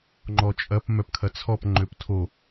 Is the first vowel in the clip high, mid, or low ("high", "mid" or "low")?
mid